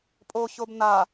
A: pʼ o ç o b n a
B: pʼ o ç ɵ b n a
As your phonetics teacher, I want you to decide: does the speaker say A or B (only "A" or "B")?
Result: A